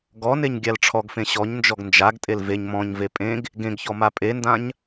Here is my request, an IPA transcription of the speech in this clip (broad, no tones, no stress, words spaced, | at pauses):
ɡɔneɲ ɡʲalʈ͡ʂʰɔɡfẽ ɕɔɲnd͡ʒɔɡ nd͡ʒaɡtʼel veɲ mɔ̃ɲve pʼẽɡ | ɡẽɡçɔ mapʼendãɲ